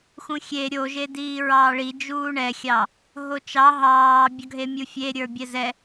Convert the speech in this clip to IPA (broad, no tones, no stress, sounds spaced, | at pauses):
x ũ xʲ e ɾʲ o ʒ e d iː ɹ ɑː ɭ i d͡ʒ uː ɳ ɛ xʲ ɑ | ɦ o t͡ʃ ɑ ɦ ɑː bʲ ɒ ɡʱ e mʲ u fʲ e ɾʲ ə˞ bʲ ɛ z ɛ